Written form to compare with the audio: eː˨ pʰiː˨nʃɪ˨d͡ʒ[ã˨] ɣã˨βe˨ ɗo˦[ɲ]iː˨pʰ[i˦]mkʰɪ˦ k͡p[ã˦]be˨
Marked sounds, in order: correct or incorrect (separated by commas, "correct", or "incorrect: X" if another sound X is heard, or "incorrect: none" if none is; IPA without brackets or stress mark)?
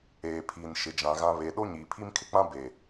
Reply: correct, correct, correct, correct